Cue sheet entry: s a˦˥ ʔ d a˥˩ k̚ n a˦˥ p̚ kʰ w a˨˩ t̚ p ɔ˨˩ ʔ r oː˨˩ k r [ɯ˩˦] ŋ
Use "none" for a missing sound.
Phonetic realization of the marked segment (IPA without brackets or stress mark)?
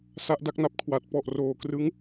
ɯ˦˥